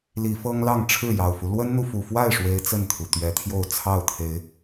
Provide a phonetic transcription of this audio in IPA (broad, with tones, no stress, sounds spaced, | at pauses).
l i˨˦ f ɤ˦ ŋ l ɑ˥˨ ŋ ʈ͡ʂʰ ɻ̩˥˨ j ɑ˨˩ ʊ̯ f u˦ l w ə˦ n n̪ u˨ f u˨˩ f w a˥˨ ɪ̯ ʂ w e˦ ɪ̯ t͡s ə˥˨ n t̪ʰ u˩ t̪ ɥ ɛ˨˦ t̪ʰ j o˥˨ ʊ̯ t͡sʰ ɑ˥˨ ʊ̯ t̪ʰ e˨˦ ɪ̯